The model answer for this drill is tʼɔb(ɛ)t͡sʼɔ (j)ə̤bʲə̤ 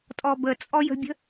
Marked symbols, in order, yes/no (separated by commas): no, yes